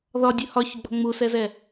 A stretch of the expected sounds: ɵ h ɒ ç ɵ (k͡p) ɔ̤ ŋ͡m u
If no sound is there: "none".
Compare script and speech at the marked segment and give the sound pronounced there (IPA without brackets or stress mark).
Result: ɡ͡b